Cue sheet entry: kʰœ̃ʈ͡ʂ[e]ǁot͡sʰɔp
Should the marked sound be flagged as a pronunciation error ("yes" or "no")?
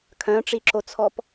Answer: yes